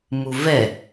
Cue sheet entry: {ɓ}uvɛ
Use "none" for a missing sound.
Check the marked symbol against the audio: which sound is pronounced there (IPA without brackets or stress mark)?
m